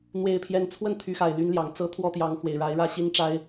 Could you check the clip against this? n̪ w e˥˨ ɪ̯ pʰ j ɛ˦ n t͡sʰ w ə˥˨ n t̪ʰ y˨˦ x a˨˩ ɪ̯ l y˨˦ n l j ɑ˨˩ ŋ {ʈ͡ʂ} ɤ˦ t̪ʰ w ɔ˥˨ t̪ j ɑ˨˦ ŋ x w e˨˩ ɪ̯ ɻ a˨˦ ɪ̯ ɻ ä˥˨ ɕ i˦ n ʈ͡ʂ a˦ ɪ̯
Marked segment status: incorrect: t͡s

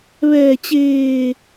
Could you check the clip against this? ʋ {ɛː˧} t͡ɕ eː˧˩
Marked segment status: incorrect: ɛː˧˩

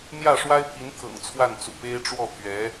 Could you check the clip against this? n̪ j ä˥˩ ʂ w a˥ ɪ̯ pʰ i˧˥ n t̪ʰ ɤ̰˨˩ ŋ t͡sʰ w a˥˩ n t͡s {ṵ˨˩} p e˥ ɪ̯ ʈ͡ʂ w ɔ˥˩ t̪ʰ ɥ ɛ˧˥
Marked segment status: correct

